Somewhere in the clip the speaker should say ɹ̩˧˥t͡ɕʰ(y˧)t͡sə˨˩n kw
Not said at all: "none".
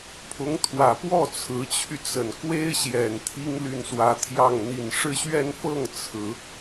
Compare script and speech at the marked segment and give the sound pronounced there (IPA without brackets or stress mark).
y˧